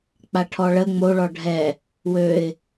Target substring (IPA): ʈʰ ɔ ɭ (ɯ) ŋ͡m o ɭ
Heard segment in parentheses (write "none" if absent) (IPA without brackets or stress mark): ə